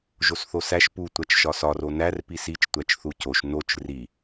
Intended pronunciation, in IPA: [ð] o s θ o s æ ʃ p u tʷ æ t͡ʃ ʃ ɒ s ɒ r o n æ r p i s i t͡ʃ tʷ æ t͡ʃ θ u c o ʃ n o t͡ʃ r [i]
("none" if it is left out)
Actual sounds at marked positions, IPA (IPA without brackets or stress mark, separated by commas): ʒ, i